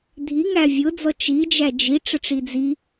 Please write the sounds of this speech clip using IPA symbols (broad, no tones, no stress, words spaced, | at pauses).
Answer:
dʱi ŋævʲʊd͡zɔ t͡ʃid͡ʒæ d͡ʒi ʈ͡ʂəʈ͡ʂid͡zi